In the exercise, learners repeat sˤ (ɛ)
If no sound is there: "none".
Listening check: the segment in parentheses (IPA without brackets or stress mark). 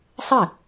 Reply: ɘ